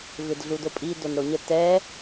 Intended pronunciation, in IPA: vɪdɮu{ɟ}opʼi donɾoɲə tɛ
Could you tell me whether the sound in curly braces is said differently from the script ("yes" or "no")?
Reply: yes